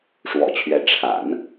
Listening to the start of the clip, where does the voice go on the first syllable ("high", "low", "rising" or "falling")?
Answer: low